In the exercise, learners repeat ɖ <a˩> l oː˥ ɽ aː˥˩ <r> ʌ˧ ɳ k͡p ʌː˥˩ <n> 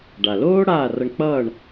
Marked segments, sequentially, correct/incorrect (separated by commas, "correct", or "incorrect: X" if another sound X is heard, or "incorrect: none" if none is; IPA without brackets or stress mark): correct, correct, incorrect: ɳ